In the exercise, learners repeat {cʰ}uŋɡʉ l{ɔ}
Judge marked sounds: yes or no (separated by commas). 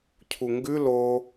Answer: yes, no